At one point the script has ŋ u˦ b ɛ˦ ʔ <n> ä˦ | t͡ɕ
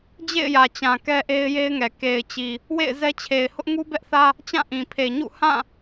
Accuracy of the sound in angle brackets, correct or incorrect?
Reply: incorrect